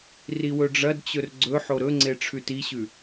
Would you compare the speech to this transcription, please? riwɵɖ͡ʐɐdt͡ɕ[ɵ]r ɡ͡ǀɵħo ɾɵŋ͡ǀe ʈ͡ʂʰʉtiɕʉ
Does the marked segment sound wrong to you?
no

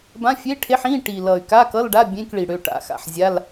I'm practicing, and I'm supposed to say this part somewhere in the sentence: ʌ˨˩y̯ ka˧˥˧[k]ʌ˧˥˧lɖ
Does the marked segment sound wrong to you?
no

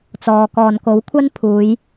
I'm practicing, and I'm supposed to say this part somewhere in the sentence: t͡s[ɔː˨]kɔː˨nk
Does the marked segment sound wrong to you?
no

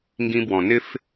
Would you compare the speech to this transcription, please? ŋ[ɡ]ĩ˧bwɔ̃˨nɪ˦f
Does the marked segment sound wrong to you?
no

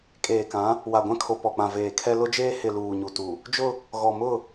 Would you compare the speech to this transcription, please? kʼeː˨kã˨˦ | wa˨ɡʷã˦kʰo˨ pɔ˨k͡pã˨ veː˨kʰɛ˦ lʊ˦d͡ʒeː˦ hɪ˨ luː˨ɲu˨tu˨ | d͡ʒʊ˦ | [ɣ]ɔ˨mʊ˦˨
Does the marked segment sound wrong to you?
no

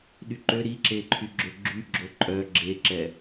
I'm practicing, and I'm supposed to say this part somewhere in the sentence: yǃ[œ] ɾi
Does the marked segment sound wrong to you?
yes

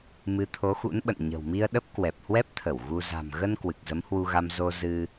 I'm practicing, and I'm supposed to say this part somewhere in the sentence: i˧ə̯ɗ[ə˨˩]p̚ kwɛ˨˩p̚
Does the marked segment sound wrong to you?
yes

